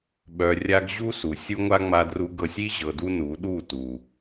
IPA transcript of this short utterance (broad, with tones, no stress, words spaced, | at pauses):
ɓœ˨rʲa˧ɡ ʑu˦su˨ sʲu˧ŋʷa˧ ŋ͡ma˧dru˧ɡɤ˧sʲ i˦ ʑɤ˨du˧ nu˨˦ɗu˦˨ tu˨